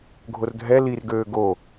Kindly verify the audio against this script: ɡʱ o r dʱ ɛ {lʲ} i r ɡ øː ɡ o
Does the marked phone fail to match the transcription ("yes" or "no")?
yes